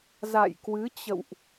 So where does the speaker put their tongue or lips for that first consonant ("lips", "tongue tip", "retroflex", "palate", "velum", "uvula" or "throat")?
tongue tip